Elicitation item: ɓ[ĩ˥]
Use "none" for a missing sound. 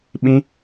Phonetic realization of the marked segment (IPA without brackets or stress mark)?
ĩ˥